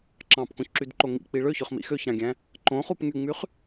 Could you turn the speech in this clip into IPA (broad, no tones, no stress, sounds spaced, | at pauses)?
ǁ ɑ̃ p k õ ç ǁ y d ǃ o ŋ ḭ k͡p i ɭ ø ç ø χ m ḭ x ø ç ɾ ɑ̃ ɡʲ æ̃ | ǃ õ χ u p ŋ y ŋ͡m y χ